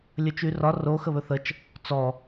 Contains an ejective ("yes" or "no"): no